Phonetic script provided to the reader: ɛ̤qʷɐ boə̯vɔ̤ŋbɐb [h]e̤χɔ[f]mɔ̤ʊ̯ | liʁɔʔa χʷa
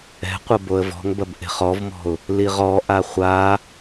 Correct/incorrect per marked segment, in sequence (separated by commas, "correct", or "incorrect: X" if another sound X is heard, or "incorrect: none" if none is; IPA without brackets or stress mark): incorrect: ʔ, incorrect: v